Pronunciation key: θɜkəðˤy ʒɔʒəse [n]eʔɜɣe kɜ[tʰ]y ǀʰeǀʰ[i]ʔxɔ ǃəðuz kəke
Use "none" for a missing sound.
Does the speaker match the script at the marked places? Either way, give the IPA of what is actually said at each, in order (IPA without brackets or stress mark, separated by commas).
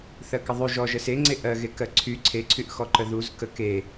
ŋ͡ǀ, ǀʰ, y